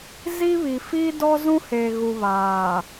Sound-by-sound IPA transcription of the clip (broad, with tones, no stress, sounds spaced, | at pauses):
z i˦ β i˨ f iː˦ d ɔ˦ z ũ˦ h eː˨ ɣ u˨ β aː˨